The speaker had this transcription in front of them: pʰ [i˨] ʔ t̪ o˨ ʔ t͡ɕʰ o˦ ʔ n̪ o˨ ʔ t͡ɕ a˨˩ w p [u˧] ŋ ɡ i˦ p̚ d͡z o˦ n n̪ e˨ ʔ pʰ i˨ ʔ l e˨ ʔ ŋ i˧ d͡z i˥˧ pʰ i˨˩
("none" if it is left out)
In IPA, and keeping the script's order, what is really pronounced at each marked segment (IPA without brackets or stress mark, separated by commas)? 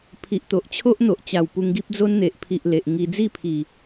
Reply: i˨, u˧